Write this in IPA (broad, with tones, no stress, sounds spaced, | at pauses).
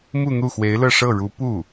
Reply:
m u˥˧ n̪ u˥˩ x w e˧˥ ɪ̯ l ɤ˥˧ ʂ ɤ˥˩ ɻ u˧˥ p u˥˩